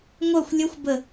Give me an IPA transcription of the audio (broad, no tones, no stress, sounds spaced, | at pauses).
ŋʷ œ xʷ lʲ ʌ xʷ b ə